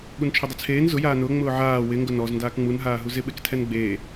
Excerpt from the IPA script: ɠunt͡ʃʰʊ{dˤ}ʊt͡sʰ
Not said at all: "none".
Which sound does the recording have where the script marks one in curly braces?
dˤ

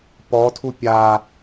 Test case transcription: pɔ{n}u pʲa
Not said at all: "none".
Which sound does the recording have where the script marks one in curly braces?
tʰ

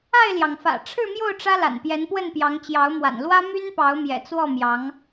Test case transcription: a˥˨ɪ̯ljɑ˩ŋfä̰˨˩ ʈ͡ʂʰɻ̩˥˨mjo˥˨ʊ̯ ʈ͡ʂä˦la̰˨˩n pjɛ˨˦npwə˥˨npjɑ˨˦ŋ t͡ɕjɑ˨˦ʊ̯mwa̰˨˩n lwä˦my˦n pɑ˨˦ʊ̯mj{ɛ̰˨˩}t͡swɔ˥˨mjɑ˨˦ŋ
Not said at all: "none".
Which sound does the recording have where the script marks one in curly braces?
ɛ̰˨˩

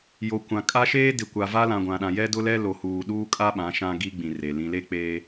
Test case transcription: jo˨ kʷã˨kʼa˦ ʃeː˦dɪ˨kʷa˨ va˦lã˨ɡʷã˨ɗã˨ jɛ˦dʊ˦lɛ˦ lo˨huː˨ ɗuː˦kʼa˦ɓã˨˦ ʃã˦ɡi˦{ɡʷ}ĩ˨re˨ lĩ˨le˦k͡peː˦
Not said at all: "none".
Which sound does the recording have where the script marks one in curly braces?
ɡ͡b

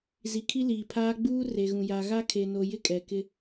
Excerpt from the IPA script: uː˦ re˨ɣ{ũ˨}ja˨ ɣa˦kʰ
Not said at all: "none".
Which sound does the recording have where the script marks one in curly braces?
ũ˨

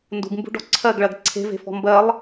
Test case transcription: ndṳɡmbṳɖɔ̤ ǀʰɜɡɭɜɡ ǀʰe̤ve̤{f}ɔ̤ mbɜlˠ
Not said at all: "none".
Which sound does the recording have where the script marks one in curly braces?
f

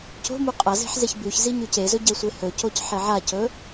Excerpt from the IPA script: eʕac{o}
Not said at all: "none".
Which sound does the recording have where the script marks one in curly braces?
ɵ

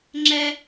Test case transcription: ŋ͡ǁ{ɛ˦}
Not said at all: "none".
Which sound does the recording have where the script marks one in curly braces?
ɛ˦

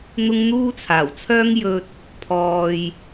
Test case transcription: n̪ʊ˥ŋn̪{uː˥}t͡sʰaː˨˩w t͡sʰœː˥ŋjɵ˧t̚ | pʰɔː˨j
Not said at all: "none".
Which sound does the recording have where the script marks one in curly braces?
uː˥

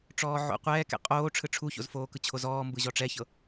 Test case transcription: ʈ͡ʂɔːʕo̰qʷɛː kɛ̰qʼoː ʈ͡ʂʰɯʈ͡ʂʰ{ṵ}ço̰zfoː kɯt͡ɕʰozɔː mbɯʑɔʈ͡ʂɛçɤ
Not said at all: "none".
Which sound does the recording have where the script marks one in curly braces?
u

